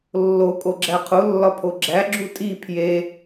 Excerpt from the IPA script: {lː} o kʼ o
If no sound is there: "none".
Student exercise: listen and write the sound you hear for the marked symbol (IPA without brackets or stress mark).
lː